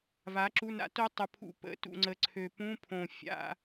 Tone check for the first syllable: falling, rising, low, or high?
rising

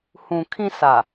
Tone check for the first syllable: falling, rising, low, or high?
low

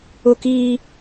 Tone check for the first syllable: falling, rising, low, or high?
high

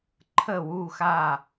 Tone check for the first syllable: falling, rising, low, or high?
falling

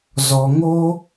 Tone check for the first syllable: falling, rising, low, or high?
low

